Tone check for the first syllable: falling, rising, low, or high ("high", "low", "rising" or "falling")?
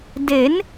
rising